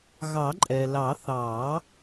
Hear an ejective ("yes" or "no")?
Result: yes